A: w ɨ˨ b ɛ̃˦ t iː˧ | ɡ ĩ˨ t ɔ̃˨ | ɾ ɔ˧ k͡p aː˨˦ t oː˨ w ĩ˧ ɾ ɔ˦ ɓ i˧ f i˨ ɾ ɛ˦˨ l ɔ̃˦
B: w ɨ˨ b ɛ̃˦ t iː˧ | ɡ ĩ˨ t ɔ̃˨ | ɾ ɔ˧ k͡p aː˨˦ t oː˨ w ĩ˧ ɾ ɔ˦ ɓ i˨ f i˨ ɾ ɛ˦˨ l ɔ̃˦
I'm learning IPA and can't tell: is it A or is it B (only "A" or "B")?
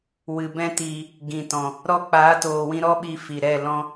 A